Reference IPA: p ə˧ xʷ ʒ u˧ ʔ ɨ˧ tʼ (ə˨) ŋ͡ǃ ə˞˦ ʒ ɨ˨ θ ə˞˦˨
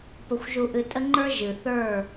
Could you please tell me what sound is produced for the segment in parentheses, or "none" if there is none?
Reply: ə˦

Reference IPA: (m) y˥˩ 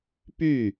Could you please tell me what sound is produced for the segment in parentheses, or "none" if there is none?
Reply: p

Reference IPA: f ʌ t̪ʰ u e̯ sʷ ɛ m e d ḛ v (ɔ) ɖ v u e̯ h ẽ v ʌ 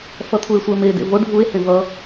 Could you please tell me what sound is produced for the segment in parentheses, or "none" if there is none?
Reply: o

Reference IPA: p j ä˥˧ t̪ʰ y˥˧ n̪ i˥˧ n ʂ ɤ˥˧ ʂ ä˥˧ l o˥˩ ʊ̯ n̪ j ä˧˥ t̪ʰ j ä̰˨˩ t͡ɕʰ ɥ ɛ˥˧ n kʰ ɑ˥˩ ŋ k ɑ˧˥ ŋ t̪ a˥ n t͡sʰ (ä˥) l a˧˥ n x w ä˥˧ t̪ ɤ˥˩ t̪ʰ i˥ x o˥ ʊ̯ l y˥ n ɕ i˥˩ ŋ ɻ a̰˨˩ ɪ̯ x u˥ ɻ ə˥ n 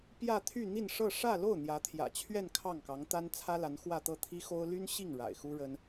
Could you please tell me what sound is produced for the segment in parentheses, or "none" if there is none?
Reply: ä˥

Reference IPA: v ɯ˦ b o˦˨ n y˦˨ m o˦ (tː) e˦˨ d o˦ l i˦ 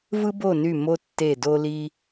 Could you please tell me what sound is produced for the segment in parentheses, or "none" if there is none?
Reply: tː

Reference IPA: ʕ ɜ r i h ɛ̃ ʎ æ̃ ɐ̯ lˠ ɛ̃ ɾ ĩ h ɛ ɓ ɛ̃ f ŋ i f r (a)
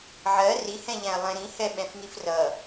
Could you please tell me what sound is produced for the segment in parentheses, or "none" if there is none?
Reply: ʌ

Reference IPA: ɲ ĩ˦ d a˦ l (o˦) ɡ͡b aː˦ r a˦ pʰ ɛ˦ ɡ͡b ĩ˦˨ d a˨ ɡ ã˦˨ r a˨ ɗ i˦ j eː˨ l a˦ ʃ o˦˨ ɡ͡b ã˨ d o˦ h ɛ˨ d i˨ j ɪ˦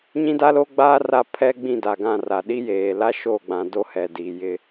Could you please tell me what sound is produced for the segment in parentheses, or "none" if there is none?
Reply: o˦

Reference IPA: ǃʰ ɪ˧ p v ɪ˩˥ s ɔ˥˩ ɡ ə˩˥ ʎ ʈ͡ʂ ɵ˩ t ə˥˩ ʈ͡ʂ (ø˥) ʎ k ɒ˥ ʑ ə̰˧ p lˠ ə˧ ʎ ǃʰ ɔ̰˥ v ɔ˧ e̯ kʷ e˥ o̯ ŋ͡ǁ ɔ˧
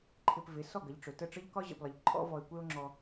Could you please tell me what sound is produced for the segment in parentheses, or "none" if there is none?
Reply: ə˥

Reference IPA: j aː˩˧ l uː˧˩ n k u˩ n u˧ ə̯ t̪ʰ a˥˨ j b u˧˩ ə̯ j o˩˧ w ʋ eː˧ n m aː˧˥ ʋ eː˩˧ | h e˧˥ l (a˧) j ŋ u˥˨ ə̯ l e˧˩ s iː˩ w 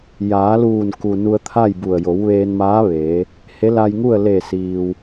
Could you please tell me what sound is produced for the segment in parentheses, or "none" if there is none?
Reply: a˧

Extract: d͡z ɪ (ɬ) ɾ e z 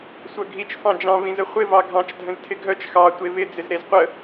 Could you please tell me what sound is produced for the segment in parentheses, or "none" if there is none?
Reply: z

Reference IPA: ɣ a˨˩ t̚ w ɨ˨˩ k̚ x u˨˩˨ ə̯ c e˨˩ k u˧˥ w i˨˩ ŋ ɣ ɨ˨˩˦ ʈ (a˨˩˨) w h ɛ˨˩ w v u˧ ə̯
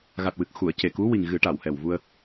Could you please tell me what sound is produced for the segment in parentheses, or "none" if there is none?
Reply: a˨˩˨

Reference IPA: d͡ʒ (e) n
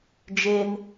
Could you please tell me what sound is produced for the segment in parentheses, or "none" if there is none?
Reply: e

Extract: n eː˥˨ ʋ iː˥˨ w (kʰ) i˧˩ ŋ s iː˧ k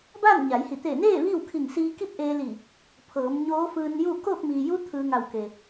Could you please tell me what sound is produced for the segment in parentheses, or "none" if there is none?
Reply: kʰ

